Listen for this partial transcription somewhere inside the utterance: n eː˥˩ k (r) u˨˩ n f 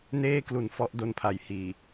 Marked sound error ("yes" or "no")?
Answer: yes